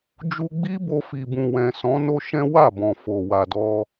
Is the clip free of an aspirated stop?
yes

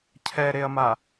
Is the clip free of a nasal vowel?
yes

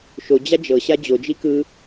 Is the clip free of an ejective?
yes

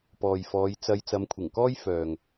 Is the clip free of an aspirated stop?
no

